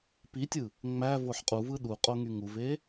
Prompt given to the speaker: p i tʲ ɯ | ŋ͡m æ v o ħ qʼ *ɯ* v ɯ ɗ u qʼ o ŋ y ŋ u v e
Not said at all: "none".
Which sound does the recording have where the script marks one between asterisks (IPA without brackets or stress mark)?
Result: u